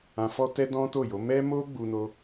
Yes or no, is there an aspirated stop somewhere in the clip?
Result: no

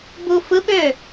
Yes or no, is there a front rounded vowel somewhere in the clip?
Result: yes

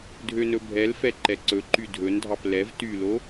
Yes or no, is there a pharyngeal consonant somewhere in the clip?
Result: no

